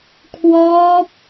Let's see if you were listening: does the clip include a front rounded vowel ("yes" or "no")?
no